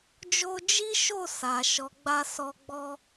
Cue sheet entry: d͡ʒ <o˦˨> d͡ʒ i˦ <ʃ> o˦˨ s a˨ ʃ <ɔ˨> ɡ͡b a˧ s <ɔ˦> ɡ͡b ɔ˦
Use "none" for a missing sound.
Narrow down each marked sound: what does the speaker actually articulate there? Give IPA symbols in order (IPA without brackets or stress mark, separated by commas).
o˦, ʃ, ɔ˨˦, ɔ˧